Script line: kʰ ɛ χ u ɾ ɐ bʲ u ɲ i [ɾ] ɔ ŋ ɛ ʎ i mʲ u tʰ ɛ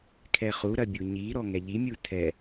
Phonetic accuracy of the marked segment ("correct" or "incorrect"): correct